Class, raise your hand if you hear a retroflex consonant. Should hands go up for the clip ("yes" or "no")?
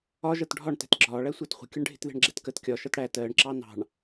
yes